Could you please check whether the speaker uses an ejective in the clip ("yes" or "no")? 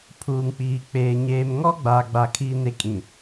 yes